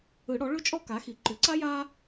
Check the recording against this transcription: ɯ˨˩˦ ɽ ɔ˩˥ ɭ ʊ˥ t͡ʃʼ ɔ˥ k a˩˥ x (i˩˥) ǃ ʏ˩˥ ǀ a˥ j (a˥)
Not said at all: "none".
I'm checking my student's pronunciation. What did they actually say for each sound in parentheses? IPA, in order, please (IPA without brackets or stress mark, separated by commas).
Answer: i˩˥, a˥